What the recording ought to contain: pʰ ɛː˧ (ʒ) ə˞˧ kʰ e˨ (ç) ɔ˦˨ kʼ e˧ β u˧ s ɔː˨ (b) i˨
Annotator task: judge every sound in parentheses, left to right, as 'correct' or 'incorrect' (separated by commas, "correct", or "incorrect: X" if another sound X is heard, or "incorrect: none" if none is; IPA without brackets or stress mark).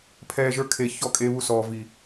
correct, correct, incorrect: v